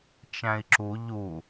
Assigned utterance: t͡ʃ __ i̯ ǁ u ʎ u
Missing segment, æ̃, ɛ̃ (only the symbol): æ̃